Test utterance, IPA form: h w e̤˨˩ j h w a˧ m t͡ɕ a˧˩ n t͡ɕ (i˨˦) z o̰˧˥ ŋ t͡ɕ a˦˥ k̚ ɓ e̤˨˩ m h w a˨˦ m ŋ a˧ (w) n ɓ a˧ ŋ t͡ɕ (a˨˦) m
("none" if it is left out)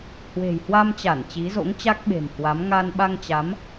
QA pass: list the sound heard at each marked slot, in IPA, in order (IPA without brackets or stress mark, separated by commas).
i˨˦, none, a˨˦